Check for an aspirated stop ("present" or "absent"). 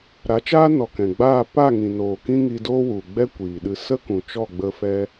absent